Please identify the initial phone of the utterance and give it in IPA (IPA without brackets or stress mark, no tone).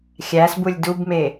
xʲ